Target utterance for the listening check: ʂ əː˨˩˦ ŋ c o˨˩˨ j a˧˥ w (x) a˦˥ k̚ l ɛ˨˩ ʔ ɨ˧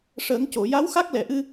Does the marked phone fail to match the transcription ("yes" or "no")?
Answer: no